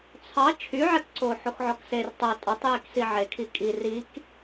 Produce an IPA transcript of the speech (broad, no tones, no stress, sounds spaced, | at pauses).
t͡sʰ ɑ t͡ʃʰ y ʕ ɛ k ǀ o ħ o x ʕ ɔ k s e r tˤ o tʼ ɔ tˤ j e k s i ʕ e kʰ i kʼ i r i k